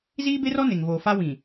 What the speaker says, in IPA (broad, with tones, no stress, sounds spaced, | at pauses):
z iː˦ b e˦ r ɔ˦ n e˨ ŋ v oː˨ f a˦ w ĩ˨